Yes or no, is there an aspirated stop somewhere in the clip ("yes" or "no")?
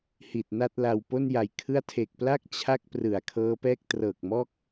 yes